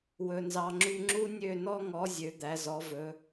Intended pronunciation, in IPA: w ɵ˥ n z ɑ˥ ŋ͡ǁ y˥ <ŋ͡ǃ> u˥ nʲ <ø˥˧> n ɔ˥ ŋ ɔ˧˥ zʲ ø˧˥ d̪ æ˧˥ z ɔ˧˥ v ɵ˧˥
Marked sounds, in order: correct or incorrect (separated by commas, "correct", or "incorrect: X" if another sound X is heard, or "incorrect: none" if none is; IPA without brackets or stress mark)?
incorrect: ŋ͡ǁ, correct